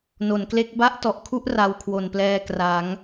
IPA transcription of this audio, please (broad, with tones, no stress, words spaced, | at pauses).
no˩˦nkle˦˥k̚ ba˦˥ʔtɔ˨˩ʔkʰu˦˥ʔ ra˧w kʰwo˨˩nplɛː˧ kra˩˦ŋ